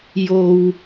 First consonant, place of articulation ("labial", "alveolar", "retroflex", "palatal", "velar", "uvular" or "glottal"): palatal